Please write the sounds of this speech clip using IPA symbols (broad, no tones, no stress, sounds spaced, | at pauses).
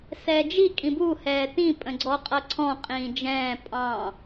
s ɛː d͡ʒ i kʼ ĩ b u h ɛː t ĩ pʼ ə̃ ɡ͡ǀ ɔ qʼ ʌ ǀʰ ɔ̃ qʼ ĩː d͡ʒ ɛ̃ː pʼ ɑ̃